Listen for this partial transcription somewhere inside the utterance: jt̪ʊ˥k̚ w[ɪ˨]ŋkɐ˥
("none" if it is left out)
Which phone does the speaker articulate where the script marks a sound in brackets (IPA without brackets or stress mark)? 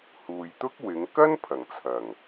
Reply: ɪ˨˧